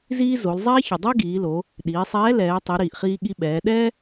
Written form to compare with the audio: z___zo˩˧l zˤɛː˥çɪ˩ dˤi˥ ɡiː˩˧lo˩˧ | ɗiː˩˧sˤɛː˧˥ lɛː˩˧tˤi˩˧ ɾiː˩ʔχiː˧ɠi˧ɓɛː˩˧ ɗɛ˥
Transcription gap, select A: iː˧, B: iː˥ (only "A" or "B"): B